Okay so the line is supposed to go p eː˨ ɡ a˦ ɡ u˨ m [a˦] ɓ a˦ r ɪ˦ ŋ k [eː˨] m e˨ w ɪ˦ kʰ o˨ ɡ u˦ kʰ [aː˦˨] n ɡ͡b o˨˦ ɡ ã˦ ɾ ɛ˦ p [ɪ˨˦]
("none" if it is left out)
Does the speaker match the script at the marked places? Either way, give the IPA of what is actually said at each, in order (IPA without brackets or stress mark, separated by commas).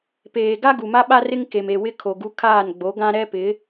a˦, e˨, aː˦˨, ɪ˨˦